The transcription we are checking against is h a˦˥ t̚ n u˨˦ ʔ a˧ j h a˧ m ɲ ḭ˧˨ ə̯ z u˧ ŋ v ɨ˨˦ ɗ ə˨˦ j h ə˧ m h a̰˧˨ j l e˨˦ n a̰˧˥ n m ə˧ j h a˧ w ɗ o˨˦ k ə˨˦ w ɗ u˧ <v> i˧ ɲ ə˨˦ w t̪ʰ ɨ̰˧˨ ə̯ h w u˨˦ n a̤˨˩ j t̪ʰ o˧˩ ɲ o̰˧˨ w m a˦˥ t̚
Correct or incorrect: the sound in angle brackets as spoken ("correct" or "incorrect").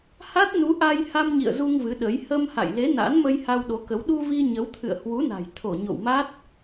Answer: correct